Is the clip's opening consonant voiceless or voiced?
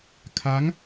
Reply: voiceless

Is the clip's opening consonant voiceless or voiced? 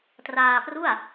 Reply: voiceless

